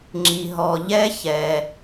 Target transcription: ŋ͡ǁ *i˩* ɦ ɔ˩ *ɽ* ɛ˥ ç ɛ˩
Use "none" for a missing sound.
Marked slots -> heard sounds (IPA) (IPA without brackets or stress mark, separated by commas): i˩, ʎ